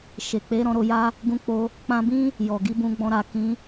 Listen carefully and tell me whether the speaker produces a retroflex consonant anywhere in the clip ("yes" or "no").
no